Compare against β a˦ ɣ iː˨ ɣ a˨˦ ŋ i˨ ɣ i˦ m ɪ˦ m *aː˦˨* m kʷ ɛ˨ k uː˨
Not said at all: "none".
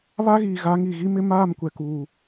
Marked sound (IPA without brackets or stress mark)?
aː˦˨